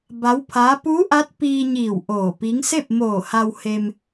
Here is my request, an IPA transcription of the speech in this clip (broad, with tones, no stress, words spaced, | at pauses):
ba˧˥wpʰaː˧˥ puː˧˥ʔa˧˥t̚ piː˧ɲiː˧˩w ʔoː˧˩pi˧˥ŋ se˥˨p̚moː˧˩ha˧w he˧m